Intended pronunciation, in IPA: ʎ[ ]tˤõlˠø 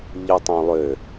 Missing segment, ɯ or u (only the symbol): ɯ